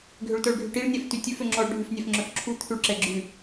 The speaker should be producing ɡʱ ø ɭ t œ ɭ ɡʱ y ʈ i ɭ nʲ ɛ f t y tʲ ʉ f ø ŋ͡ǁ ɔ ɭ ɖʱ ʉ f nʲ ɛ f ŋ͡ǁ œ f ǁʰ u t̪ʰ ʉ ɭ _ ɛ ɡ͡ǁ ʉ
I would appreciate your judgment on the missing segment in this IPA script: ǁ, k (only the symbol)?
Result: ǁ